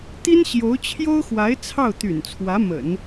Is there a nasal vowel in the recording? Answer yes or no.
no